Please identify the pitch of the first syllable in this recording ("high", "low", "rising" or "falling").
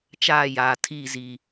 falling